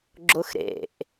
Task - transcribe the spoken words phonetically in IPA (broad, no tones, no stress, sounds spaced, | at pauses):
ɡ͡ǁ ʊ x ɾ ḛ ʔ